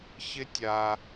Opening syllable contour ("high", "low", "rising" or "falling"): high